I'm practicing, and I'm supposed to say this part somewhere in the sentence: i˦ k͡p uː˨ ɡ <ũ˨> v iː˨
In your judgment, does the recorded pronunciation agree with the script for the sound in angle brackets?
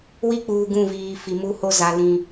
no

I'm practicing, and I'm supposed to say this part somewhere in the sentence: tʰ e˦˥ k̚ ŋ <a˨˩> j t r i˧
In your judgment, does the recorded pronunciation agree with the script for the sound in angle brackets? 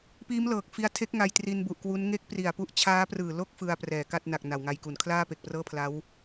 no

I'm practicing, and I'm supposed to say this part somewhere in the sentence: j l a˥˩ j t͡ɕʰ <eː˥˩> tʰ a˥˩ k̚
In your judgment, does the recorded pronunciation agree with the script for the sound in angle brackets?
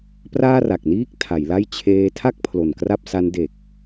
no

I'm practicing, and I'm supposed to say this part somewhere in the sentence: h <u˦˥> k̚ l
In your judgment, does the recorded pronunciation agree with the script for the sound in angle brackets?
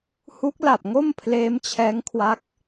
yes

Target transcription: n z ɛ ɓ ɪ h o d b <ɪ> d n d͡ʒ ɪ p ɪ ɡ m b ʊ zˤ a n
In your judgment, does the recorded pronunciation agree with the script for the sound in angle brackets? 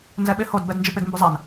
no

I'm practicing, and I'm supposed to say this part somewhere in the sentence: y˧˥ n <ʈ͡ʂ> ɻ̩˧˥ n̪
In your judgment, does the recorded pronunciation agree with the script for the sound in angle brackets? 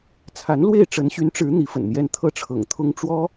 yes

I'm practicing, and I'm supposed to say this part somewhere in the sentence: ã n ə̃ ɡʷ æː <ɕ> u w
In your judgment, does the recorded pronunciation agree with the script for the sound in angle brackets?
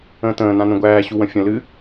yes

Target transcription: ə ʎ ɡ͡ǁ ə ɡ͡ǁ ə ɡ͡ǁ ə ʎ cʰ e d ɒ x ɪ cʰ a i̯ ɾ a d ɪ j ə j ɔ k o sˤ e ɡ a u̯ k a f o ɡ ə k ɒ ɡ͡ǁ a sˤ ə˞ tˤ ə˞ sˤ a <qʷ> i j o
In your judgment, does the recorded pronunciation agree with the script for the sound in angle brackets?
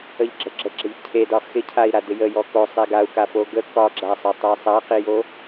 no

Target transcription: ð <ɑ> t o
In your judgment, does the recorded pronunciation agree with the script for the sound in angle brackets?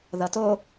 no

